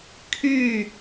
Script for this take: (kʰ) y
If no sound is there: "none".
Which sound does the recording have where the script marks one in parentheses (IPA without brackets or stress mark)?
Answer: kʰ